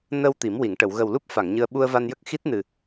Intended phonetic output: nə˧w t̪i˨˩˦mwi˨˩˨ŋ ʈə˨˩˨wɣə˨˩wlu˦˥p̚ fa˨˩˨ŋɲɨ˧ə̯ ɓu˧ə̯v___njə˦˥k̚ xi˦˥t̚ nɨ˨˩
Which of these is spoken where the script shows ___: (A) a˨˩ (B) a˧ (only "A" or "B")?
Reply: B